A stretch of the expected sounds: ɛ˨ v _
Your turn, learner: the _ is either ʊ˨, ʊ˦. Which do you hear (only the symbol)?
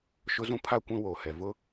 ʊ˦